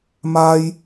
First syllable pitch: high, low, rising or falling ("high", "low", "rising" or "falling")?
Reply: high